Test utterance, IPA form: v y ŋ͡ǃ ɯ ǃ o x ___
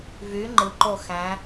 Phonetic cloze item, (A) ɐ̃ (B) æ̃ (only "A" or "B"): B